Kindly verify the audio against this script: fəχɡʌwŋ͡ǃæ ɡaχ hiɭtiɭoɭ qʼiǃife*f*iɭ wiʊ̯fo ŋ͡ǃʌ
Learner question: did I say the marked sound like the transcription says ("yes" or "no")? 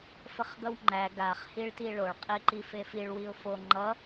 yes